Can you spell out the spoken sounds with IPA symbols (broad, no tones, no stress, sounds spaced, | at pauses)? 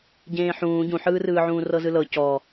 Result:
ɟ ẽː ħ ũː ɟ ũ ħ ɯː r ɯː ʕ ũː r ɤ z ɯ l ɤ c ɔ